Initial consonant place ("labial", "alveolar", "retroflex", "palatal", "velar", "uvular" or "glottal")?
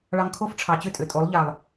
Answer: retroflex